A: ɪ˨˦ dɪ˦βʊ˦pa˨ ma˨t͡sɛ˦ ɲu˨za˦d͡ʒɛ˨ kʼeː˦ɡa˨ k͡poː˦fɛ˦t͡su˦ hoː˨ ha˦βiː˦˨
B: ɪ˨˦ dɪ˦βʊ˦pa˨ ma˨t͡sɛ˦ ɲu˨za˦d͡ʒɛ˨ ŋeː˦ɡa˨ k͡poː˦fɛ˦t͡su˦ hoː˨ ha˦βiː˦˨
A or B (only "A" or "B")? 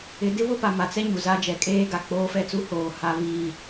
A